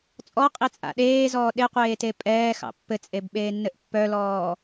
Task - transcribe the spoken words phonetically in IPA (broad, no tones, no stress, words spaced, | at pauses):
t͡sʼɔqʼit͡sʼa̰ ɗeːzɔː ɗeqʷeːte pʼɛːxɑ̰ pːɘt͡sʼebɓeːnːɘʔ pːœlɔː